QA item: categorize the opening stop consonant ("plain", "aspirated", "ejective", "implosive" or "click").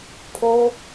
aspirated